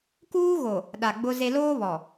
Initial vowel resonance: oral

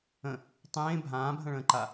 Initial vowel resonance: nasal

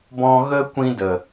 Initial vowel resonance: nasal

